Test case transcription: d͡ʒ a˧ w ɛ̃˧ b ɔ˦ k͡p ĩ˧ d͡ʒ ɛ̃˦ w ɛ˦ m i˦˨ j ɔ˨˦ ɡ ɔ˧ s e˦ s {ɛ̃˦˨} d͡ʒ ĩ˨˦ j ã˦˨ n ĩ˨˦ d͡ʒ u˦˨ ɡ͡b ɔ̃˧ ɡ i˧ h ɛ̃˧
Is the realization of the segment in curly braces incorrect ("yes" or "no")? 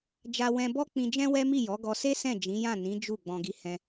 no